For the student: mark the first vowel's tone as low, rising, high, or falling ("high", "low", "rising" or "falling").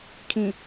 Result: low